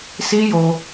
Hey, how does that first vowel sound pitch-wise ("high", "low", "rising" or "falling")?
high